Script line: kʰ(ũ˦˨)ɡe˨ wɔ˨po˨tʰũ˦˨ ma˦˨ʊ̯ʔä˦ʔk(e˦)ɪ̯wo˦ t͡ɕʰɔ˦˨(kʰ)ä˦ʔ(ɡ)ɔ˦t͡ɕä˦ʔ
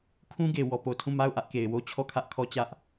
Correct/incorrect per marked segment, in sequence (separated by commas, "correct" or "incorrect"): incorrect, incorrect, correct, incorrect